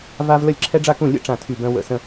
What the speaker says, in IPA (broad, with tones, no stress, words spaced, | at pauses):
va˥v lə˥˨lʲǁʰɛ˥ɖ͡ʐa˥kũ˥˨ lʲə̰˥ ʈ͡ʂã˥˨tʰy˥˨bœ̃˥ wə̰˥˨sə̃˥